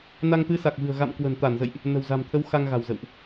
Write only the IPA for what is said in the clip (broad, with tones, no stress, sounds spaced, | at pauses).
n a˧ ŋ t̪ ɨ˨˦ s a˨˩ k̚ v ɨ̤˨˩ ə̯ ɣ a̰˧˨ m k w ə̤˨˩ n t̪ a˧˩ n z ə̰˧˨ j ʔ | n ə̤˨˩ w z a̤˨˩ m t̪ʰ ə˨˦ w x a˧ ŋ ɣ a̤˨˩ w z ə̰˧˨ w ʔ